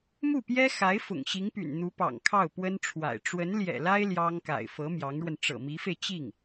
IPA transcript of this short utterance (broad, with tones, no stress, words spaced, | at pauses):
mu˥˩pjɛ˥ xa˧˥ɪ̯ fʊ̰˨˩ŋɕi˧˥ŋpy̰˨˩n n̪u˧˥pɑ̰˨˩ŋ kʰɑ˥˩ʊ̯pwə˥nʈ͡ʂʰwa̰˨˩ɪ̯ ʈ͡ʂwə˧˥nljɛ̰˨˩la˥ɪ̯ ljɑ˥ŋ ka̰˨˩ɪ̯fɤ˧˥ mjɑ˧˥ŋɻwə˧n ʈ͡ʂɤ̰˨˩mi˧˥fe˧ɪ̯ t͡ɕi˥˩ŋ